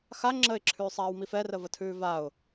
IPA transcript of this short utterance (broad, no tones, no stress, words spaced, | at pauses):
xa ŋ͡ǁəɪ̯ǁʰʉːsˤaːwmif ɛrəvətʰʉː vaʊ̯